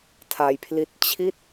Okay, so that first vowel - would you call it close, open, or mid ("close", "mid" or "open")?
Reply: open